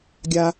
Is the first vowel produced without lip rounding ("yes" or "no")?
yes